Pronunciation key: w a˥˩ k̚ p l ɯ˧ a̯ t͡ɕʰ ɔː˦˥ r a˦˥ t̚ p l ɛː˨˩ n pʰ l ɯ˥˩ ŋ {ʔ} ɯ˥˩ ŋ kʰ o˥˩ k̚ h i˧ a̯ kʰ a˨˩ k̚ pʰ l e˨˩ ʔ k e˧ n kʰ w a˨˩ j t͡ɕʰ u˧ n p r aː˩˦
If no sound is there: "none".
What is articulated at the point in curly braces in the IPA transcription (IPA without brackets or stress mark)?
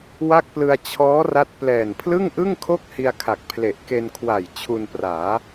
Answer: ʔ